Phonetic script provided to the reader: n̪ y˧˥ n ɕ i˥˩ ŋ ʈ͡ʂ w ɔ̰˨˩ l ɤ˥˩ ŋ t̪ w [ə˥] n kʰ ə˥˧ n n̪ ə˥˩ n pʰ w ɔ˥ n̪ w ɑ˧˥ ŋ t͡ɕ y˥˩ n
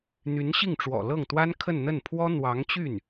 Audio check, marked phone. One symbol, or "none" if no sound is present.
a˥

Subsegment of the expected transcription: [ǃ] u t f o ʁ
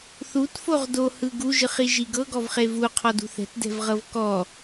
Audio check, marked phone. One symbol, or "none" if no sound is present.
θ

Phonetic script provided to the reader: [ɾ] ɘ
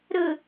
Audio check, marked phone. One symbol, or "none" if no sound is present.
ɾ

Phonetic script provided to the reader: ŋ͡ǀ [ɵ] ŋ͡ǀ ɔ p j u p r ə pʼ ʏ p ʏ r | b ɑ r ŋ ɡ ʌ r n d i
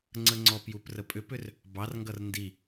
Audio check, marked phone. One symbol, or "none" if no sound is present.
ə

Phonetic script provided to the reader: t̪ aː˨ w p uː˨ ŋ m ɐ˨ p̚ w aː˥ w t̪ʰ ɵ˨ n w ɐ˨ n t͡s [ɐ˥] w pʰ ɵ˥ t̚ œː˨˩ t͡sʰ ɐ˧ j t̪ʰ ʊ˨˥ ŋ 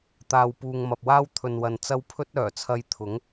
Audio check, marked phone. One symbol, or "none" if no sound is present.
ɐ˥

